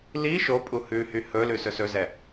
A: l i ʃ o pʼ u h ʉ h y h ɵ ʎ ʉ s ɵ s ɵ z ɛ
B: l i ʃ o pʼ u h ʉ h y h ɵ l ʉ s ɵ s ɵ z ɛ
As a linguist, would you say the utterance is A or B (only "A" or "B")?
B